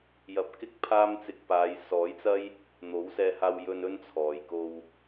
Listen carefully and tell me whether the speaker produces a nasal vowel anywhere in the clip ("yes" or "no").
no